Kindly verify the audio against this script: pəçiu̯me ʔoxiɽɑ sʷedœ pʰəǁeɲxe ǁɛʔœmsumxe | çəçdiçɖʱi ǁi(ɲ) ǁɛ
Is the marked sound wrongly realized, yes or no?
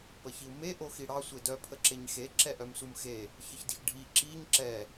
no